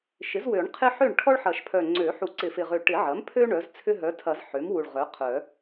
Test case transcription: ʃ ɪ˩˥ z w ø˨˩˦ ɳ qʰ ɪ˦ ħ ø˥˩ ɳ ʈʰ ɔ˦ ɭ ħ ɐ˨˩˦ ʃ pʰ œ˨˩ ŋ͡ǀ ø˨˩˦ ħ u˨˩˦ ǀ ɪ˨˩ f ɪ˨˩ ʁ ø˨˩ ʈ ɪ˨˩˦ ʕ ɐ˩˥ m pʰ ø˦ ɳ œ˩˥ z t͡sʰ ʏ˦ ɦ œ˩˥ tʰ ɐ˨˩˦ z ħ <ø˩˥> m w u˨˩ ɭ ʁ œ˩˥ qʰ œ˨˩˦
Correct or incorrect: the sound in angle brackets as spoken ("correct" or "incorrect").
correct